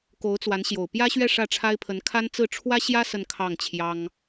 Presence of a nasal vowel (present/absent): absent